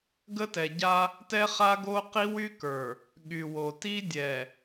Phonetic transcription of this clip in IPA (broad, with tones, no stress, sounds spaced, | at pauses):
ɡ ə˦ t ɛ˨ ɟ a˦ | t ɛ˦ χ a˦ ɡ o˦ q i˦ w y˦ k ə˞˨ | ɠ y˨ w o˨ t i˦ dʲ ɛ˨